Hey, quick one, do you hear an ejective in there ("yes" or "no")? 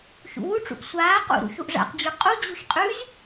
yes